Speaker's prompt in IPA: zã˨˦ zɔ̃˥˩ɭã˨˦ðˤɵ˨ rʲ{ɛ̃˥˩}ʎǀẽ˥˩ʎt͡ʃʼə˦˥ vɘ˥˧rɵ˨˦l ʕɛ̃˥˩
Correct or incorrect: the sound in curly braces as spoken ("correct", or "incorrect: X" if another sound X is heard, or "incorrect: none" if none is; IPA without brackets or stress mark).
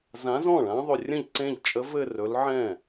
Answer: incorrect: ə̃˥˩